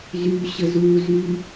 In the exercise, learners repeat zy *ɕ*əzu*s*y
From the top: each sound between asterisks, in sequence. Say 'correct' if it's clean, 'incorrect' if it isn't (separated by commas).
correct, incorrect